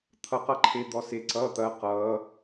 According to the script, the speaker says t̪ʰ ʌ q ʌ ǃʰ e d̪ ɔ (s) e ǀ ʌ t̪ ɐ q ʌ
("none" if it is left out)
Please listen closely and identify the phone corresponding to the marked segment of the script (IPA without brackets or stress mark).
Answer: s